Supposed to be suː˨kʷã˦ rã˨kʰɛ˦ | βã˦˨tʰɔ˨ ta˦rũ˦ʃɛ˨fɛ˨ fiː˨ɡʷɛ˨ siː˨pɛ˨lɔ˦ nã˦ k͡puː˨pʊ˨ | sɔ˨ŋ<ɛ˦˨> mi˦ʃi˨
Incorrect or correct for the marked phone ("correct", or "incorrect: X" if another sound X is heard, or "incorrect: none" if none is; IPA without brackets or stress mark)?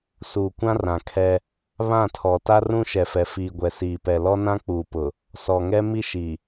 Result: incorrect: ɛ˦